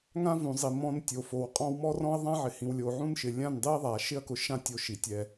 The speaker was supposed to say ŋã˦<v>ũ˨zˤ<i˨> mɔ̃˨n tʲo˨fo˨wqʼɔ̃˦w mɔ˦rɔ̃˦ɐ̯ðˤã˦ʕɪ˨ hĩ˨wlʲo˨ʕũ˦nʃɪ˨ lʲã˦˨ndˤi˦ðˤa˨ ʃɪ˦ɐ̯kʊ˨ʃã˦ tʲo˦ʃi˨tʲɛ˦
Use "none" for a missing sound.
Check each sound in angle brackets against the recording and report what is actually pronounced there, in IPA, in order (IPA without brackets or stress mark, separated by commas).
v, i˨